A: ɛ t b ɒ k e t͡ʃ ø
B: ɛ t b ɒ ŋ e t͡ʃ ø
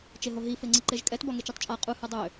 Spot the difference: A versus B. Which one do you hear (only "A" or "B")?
B